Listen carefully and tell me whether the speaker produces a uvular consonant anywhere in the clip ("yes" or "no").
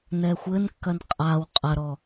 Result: yes